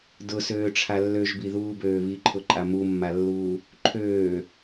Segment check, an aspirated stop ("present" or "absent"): present